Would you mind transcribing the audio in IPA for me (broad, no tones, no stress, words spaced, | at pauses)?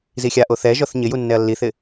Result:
zixʲaʔo θɛʒɔθ ɲɪju nːɛɐ̯lːiθɪ